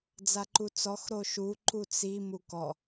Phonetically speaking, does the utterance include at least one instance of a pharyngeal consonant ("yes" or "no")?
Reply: no